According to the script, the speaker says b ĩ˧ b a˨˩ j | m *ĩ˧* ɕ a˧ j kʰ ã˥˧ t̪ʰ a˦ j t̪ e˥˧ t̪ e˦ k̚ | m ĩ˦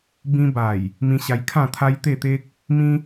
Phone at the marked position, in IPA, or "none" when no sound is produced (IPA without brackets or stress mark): ĩ˧